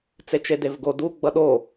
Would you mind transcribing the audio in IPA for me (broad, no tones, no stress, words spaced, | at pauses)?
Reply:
t͡set͡ʃedevɡo du ɡ͡bʌɗo